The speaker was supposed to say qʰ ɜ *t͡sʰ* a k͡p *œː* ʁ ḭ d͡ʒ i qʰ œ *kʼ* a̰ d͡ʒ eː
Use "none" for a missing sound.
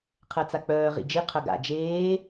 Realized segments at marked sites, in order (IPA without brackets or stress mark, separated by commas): t͡s, œː, ɡ